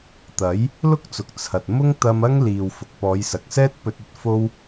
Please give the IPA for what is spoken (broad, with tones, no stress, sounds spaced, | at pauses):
t̪ ɐ˨˥ j | l ʊ˥ k̚ t͡s ʊ˨ k̚ t͡sʰ ɐ˨ t̚ m ʊ˥ ŋ t̪ ɐ˧ m ɐ˥ ŋ l iː˨ w f ʊ˨ k̚ p ɔː˨˧ j s ɐ˨ k̚ s ɛː˥ t̚ p ɵ˧ t̚ ɵ˧ t̚ f o˧ w